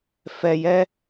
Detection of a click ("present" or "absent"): absent